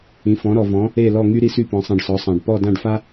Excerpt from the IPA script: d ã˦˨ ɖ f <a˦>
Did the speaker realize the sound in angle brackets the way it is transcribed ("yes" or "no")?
yes